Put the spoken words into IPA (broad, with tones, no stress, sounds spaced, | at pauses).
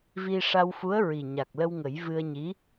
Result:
v i˧ ʂ a˧ w f u˧˥ ə̯ ɹ i˨˩ ɲ a˨˩ k̚ l ə˧ w ŋ ə˨˩˦ j v ɨ˧ ə̯ ɲ i˧˥